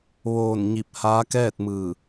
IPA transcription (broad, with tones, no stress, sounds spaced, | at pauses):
ʋ oː˧˩ n ɲ i˧˩ p̚ h aː˧˥ k ɛː˥˨ t̚ m ɯː˧˩